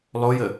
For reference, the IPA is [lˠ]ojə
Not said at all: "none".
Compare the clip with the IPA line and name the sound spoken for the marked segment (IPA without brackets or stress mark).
lˠ